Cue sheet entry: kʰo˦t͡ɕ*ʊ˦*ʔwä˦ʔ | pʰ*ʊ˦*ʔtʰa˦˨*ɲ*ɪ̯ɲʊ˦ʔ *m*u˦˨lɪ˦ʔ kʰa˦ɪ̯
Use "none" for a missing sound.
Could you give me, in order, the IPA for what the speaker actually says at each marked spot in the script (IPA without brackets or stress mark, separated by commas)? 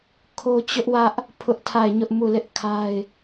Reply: ʊ˦, ʊ˦, none, m